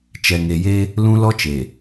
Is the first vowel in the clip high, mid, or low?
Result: mid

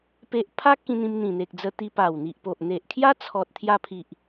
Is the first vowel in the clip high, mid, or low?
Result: mid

